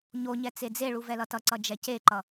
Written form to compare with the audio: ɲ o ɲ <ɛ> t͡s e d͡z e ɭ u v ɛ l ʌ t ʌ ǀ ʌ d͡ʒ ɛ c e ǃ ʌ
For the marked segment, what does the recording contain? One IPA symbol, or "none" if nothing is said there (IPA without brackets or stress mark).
ɛ